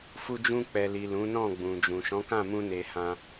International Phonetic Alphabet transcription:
f u˧ d͡ʒ ũ˧ k͡p ɛ˨ l i˨ l ũ˨˦ n ɔ̃˦˨ ɡ͡b ũ˨ d͡ʒ ũ˨ ʃ ɔ̃˨˦ k ã˦˨ m ũ˧ n e˧ h ã˧

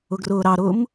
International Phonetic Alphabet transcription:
ʊ ɡ r ʊː ɾ ɑ ɾ ʊː m

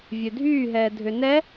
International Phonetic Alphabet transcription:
vʲ ø dʱ yː ɦ ɛː dʱ ø n ɛ

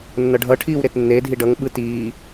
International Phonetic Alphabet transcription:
nː ʌ ɖʱ ʌ ʈʰ iː w ɾ e t nː e dʱ i ɖ ʌ ŋ ɓ ɯ t iː

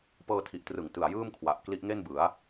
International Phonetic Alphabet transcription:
p ɤː˧ tʰ i˨˩ ʔ t r ɯ˨˩ ŋ t ɯ˨˩ a̯ j ɯː˥˩ m kʰ w a˨˩ ʔ k l i˦˥ ʔ ŋ e˥˩ n b ɯ˩˦ a̯

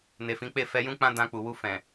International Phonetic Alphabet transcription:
n e˨ f ĩ˨˦ k͡p e˦˨ f ɛ˧ j ũ˦ k͡p ã˦ d ã˧ k͡p u˨ w u˧ f ɛ̃˨

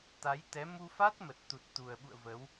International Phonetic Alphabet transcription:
t̪ a˨˦ j t̪ ɛ˨˦ m u˧ f a˦˥ t̚ m ə˨˩ t̚ t̪ u˨˩ t̚ t̪ u˨˩ ə̯ ɓ ṵ˧˨ ə̯ v ə˨˦ w

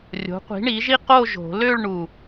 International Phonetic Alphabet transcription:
rʲ o̤˨˥ qʷ i̤˨˥ ɳ i˨˥ ʒ i˥ q o˥˧ ʒ o̤˨˩˦ l ø˥˧ ɭ ɳ u˨˩

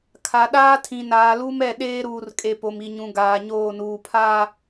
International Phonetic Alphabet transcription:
kʰ a˨ ɗ aː˦ tʰ ĩ˨ n aː˨ l u˦ m ɛ˦˨ ɗ eː˦ ɾ uː˨ r kʼ e˨ p o˨ m i˨ ɲ ũ˨ ɡ aː˨ ɲ oː˦˨ n uː˨ pʰ a˦˨

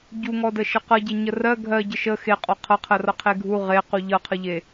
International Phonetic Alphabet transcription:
ɟ u ŋ ɔ d ə ʃ ə q ʌ ɟ e ɲ ə r ɜ ɡʱ ɜ ɟ ə ʃ ə x e qʼ ɔ qʰ ʌ qʰ ɜ r ʌ qʰ e ɡʱ u ʁ e q u ʎ ʌ qʰ ə ʎ e

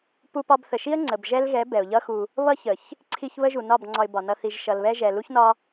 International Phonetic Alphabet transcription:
p u˧ p ɒ˧ b θ ə˨ ʃ i˦ ə̯ ŋ͡ǀ ə˨ b ʒ ɛ˦ l ɣ ɛ˨˦ b ɛ˨ ʊ̯ ʎ ʌ˦ x u˧ | β ʌ˦ ç ə˨ ç | ǀʰ i˦ ç β ə˦ ʒ u˨ n ɒ˦˨ b ŋ͡ǀ ɒ˧ ɪ̯ b ɒ˨ n ʌ˧ θ i˨ ʒ ʃ ʌ˨ l β ɛ˧ ʒ ɛ˨ l u˦ ç n ɒ˦

